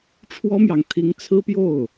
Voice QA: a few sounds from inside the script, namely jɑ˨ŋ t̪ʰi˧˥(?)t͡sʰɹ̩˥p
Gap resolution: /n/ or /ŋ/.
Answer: ŋ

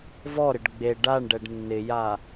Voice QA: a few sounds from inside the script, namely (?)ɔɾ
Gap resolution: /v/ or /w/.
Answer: v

